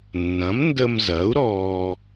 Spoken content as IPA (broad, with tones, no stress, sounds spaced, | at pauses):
nː ɐ̃˩˥ m n d ə˧ m z ɐ˩˥ u̯ ɾ ɔː˧